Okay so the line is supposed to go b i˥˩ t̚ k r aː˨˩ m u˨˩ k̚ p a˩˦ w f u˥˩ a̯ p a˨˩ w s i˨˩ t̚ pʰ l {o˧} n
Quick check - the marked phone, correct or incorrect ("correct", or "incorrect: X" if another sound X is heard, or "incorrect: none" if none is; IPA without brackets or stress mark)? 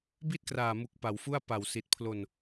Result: correct